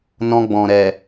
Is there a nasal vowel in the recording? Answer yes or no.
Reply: yes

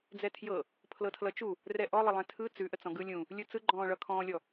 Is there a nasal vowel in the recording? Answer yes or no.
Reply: yes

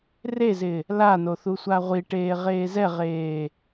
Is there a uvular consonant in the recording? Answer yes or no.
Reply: yes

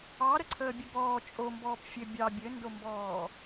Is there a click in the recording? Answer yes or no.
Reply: yes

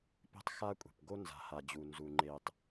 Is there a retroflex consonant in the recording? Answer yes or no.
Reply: no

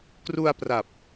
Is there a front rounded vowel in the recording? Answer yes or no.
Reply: no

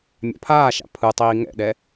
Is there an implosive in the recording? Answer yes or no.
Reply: yes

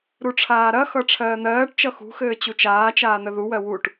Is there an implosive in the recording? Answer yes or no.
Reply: no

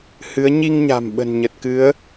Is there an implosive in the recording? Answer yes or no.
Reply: yes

